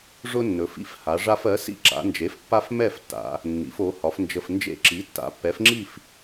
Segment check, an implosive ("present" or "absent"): absent